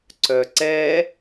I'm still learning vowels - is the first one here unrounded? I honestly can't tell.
no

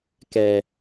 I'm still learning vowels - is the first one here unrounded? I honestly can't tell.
yes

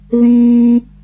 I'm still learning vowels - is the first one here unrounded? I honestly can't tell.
yes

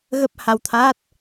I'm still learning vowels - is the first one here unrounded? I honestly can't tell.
yes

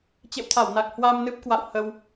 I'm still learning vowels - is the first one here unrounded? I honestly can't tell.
yes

